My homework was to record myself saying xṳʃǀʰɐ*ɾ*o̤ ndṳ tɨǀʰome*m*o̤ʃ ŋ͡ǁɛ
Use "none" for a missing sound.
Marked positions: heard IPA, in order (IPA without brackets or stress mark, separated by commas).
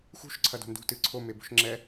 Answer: d, b